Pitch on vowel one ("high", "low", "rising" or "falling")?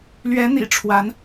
rising